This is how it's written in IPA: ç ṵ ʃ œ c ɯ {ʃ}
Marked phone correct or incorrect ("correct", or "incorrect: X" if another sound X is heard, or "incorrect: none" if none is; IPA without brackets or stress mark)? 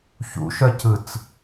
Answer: incorrect: t͡s